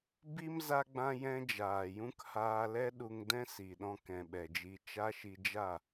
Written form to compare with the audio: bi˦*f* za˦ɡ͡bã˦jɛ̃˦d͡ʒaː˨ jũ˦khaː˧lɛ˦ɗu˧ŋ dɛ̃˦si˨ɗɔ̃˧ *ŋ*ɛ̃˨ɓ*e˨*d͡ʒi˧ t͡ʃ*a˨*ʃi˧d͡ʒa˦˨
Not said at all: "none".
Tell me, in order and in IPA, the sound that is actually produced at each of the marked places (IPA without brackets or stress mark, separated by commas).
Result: m, k, ɛ˨, a˦